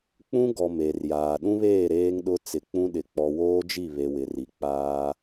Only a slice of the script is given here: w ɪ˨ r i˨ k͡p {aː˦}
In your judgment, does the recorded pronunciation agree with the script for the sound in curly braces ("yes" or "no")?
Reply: yes